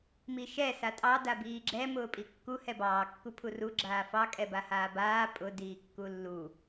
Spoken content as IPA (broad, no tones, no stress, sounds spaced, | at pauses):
m i ʃ ɛ s a tʼ ɑ d a b iː ɡ͡ǁ ɛ m ʊː pʼ i kː u h ɛ b ɑː kː u pʰ u r u ɡ͡ǁ aː f ɑ kʼ ɛ b a h aː b aː pʼ ʊ d iː kː u lː u